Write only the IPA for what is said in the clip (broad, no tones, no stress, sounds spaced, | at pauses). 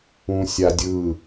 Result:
ũ sʲ a dʲ ɯ